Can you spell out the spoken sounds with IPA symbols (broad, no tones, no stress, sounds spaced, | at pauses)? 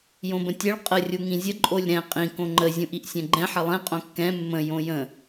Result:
j õ b ə̃ tʲ ɛ ɭ qʼ ə rʲ u ŋ ĩ zʲ ə ǃʼ o lʲ ɾ ɛ̃ qʼ ĩ k õ ŋ͡ǃ ə zʲ ũ ʔ i ʔ sʲ ɛ̃ ɡ͡ǃ ɛ̃ ħ ə lˠ ɛ̃ qʼ õ kː ɛ̃ mː ə̃ j õ j ə̃